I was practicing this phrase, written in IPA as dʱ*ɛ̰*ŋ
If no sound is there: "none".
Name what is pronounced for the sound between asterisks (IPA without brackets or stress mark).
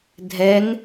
ɛ